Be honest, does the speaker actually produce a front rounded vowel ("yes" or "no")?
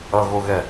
no